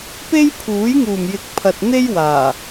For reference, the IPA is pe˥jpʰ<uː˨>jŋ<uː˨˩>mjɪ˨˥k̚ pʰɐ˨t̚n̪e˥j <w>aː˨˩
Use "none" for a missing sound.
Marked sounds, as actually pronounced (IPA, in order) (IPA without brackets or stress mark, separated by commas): uː˨˥, uː˨˩, w